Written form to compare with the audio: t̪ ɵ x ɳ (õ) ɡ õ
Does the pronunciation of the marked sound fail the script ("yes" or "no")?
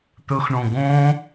no